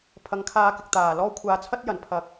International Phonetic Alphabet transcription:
pʰ ɐ˨ ŋ kʰ aː˧ k ɪ˨ k̚ t̪ aː˨˩ l ɔː˥ kʷʰ aː˨ t͡sʰ ɐ˥ t̚ j ɐ˨˩ n pʰ ɐ˨˥ k̚

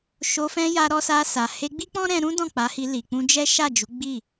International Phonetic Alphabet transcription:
ʃ o˧ f ɛ̃˧ j a˧ ɾ ɔ˧ s a˧ s a˨ h e˧ ɡ͡b i˦ k͡p ɔ̃˦ ɾ ɛ̃˧ ɾ ũ˦ d ɔ̃˦˨ k͡p a˨˦ h i˧ l i˨ k͡p ũ˧ d͡ʒ ɛ˦ ʃ a˦˨ d͡ʒ u˨˦ ɡ͡b i˦˨

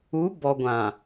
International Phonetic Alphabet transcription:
u˨˦ b ɔ˨ ɡʷ ã˨

